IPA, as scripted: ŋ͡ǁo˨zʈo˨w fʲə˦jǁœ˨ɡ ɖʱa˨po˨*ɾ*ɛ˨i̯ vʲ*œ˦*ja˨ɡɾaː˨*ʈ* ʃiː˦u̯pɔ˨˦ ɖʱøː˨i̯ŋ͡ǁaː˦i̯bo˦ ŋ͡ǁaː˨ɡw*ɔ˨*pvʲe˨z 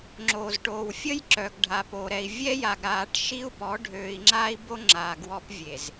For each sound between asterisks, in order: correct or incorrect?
correct, incorrect: ɛ˦, correct, incorrect: ɔ˦

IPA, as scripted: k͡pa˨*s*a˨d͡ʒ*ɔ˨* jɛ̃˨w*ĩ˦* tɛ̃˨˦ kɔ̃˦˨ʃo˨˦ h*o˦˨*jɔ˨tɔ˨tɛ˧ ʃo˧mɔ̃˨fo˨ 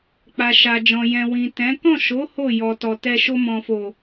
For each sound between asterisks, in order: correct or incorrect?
incorrect: ʃ, incorrect: ɔ̃˨, incorrect: ĩ˨, correct

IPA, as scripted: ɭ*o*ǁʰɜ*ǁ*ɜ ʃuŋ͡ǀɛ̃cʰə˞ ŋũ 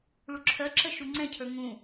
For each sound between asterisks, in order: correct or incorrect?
incorrect: u, correct

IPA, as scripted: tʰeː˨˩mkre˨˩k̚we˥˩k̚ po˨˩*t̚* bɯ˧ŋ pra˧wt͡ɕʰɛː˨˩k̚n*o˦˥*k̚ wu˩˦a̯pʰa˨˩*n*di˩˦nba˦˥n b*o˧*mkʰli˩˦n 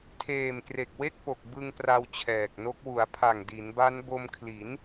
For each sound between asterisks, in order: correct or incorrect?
incorrect: k̚, correct, incorrect: ŋ, correct

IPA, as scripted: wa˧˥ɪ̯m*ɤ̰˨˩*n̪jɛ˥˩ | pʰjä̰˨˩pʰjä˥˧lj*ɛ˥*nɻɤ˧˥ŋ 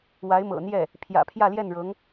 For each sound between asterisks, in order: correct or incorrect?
correct, incorrect: ɛ˥˩

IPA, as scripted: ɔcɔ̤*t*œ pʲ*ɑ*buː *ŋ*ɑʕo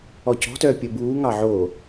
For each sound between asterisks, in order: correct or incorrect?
correct, incorrect: ə, correct

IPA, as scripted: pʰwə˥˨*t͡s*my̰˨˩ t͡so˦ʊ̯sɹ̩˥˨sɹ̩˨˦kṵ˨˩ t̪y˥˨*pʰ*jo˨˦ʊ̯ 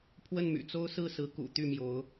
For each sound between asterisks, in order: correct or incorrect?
incorrect: n, incorrect: m

